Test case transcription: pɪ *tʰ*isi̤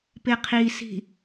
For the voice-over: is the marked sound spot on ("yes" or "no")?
no